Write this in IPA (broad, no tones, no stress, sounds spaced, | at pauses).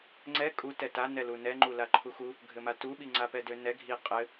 ŋ͡ǀ ɛ kʼ u t ɛ t a n ɛ l u n ɛ ŋ͡ǃ u l a ǃʰ u x u | ɡʱ ɘ m a t u ɓ i ŋ͡ǀ a p ɛ d ø n ɛ ɡʱ i qʼ ɘ